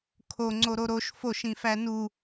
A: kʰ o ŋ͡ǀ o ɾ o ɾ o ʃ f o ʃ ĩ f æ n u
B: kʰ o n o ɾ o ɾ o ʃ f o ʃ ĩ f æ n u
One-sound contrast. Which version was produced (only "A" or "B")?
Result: A